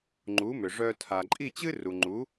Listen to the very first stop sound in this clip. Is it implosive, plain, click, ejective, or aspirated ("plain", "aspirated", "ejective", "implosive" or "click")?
click